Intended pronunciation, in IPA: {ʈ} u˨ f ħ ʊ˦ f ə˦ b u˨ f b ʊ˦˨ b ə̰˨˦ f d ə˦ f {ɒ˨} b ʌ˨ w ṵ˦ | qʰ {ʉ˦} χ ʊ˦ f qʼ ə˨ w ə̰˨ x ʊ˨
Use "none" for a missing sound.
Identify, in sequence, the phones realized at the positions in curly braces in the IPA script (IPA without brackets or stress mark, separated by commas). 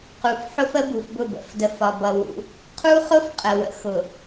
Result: q, ɒ˨, u˦